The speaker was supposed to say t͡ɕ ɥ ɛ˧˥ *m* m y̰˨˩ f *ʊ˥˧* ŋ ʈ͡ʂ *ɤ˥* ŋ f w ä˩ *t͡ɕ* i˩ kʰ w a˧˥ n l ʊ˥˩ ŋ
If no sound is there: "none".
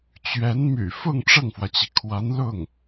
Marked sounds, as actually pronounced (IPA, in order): n, ʊ˥˧, ɤ˥˩, t͡ɕ

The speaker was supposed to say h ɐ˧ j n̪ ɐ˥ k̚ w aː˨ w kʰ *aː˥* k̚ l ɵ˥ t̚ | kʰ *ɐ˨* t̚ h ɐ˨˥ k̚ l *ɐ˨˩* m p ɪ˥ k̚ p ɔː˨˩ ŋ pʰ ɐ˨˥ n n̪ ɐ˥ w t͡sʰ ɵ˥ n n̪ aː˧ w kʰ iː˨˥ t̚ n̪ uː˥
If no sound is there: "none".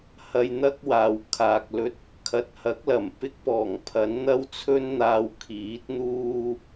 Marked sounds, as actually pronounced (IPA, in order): aː˨, ɐ˨, ɐ˨˩

